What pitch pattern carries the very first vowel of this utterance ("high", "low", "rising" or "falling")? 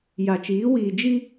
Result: low